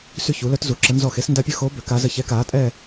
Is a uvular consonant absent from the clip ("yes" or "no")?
yes